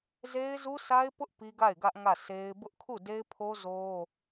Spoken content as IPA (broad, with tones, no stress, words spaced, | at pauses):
ze˦ɪ̯zu˦sa˦ɪ̯pʊ˦ʔ pi˦ɡa˦˨ɪ̯ɡä˦ʔ ŋä˦˨se˦ɪ̯ bʊ˦ʔkʰu˦˨ de˦ɪ̯pʰo˦ zo˦